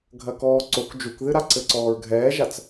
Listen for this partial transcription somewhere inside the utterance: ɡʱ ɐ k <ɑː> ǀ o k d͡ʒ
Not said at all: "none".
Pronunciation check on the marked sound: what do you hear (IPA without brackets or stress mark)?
ɔː